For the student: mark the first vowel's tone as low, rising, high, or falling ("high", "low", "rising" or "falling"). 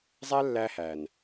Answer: high